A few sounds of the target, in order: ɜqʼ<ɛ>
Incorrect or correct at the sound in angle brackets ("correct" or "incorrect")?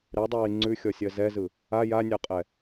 correct